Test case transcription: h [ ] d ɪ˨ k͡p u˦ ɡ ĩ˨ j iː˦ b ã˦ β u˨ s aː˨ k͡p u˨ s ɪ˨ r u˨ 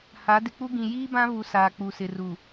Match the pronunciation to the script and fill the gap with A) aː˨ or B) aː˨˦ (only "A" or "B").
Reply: B